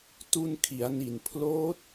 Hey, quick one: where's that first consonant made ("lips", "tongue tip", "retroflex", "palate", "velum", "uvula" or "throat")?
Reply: tongue tip